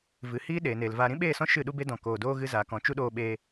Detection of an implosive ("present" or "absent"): present